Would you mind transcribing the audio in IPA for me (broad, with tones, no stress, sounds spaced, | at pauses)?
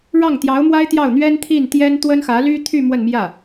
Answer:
ɻ ɑ˥˩ ŋ t̪ j ɑ˧˥ ʊ̯ m w a˥ ɪ̯ t̪ j ɑ˥˩ ʊ̯ n̪ ɥ ɛ˥ n t̪ʰ i˥˩ n t̪ j ɛ˥ n t̪ w ə˥ n x ä˧˥ l y˥ t̪ʰ y˥˧ m w ə˥˧ n m j ä˥˩